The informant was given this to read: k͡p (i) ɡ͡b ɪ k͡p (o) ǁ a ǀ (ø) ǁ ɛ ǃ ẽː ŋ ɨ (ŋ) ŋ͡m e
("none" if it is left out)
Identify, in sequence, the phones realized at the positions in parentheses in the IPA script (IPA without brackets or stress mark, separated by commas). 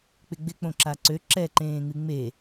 ɪ, õ, ø, none